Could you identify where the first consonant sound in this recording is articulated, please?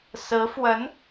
alveolar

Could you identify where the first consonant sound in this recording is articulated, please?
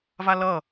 labial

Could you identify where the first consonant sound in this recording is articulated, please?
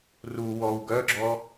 alveolar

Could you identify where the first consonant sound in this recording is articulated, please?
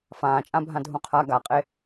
labial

